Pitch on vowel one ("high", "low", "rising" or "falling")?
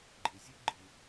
low